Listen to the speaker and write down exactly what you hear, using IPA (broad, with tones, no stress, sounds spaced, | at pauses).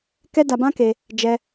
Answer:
k ɛ˦ d a˧ b ã˦ k e˧ | d͡ʒ ɛ˦